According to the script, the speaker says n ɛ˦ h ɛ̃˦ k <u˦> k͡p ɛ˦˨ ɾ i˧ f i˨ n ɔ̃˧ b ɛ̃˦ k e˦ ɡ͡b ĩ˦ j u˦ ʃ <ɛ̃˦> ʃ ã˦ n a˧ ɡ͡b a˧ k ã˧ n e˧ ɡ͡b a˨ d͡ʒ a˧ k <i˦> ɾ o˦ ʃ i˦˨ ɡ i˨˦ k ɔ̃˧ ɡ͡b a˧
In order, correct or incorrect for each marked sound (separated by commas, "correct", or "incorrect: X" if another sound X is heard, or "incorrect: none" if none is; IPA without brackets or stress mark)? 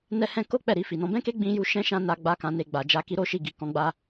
incorrect: o˦, correct, correct